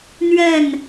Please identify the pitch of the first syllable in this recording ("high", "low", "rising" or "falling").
falling